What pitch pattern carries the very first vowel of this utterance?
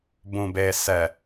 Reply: low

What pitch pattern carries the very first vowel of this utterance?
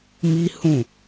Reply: high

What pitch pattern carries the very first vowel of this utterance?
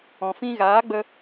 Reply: low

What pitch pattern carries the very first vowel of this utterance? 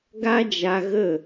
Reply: high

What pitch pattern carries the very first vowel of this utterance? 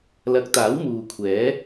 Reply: rising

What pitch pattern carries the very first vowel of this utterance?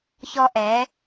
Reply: high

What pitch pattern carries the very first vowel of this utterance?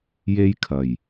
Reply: high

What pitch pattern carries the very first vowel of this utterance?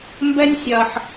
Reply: high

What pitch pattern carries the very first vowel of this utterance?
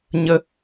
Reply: high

